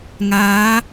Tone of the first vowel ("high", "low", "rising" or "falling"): rising